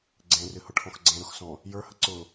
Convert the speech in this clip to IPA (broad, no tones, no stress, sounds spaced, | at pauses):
ɡ͡ǀ ẽ r ɨ h ʊ ʈʰ ɔ̃ x ɡ͡ǀ ẽ ɾ ʊ x s ɔ̃ | j ə˞ h ə ǀ ʊ